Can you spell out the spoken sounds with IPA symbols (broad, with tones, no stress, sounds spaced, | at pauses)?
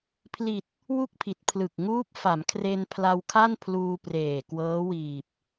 pʰ l i˨˩ t̚ | w u˥˩ k̚ pʰ i˨˩ t̚ pʰ l ɯ˨˩ k̚ ŋ uː˦˥ p̚ f a˩˦ m kʰ r e˧ n pʰ l a˧ w kʰ a˥˩ n pʰ l uː˧ p r eː˨˩ k w ɤː˦˥ w iː˨˩ p̚